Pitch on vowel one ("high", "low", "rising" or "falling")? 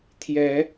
rising